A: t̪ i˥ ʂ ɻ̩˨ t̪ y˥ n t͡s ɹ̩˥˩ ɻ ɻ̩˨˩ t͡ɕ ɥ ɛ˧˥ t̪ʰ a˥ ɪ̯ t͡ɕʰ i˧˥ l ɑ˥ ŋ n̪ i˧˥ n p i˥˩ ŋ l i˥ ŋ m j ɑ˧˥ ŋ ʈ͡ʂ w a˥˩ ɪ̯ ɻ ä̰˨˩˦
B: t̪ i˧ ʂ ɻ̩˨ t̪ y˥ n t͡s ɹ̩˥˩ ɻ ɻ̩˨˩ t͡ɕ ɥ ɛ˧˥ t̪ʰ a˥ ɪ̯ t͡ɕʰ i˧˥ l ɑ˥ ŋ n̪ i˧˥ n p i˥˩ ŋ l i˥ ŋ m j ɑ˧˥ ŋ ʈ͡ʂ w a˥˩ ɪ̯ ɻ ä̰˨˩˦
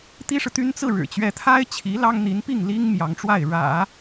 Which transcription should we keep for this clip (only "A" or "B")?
A